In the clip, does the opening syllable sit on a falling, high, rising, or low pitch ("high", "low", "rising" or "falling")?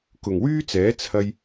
low